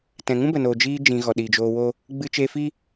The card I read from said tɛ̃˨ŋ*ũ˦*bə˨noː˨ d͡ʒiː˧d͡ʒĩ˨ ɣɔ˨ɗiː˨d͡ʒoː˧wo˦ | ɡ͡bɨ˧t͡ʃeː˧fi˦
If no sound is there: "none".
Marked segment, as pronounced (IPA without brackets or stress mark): ũ˦